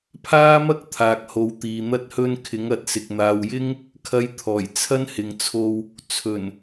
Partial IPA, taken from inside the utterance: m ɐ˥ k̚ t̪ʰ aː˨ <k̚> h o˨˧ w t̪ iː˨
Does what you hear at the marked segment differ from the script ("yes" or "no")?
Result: no